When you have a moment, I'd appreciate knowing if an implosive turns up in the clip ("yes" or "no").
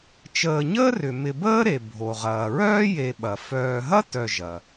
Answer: yes